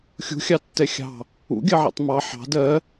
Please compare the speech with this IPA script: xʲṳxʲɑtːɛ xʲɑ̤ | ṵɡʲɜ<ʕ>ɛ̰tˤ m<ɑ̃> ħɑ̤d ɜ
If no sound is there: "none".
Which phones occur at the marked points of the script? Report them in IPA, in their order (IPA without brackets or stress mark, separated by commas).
ʕ, ɑ